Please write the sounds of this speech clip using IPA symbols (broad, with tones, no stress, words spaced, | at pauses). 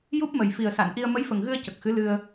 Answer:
ju˦˥p̚mə˨˩j fi˨˩ə̯sa˨˩˨nʔi˧ə̯ mə˧˥jfə˨˩ŋɣɨ˧ə̯ cə˨˩k̚xɨ˧˥ lɨ˧ə̯